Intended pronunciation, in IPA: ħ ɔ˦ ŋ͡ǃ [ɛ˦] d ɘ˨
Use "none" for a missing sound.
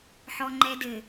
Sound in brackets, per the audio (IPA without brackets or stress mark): ɛ˦